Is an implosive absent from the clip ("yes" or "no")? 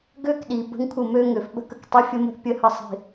no